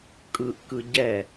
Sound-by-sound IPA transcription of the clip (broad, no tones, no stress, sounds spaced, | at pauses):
kʼ ɯ ʔ k ɯ ɟ ɛ